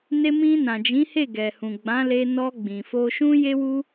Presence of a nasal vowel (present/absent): present